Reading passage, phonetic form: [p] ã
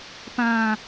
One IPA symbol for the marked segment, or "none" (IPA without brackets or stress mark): p